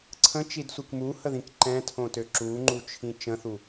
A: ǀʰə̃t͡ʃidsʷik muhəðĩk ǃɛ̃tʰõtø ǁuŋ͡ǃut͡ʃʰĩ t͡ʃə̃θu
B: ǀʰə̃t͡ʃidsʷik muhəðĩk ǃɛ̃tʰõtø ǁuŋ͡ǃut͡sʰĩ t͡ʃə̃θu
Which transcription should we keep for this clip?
A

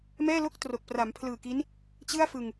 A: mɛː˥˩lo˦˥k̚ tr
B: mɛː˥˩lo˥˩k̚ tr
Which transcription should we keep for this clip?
B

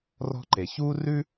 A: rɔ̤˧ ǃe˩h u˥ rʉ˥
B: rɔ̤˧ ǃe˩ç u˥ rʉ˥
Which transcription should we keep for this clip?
B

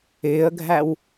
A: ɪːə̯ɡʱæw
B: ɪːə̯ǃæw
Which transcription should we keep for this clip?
A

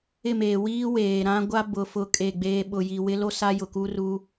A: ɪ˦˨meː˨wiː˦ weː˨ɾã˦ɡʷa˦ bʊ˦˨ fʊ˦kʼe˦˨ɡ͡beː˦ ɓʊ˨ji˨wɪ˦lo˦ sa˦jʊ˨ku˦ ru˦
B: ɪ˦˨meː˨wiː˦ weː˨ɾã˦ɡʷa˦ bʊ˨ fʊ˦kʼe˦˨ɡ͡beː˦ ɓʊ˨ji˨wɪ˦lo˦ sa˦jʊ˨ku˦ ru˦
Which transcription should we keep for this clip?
B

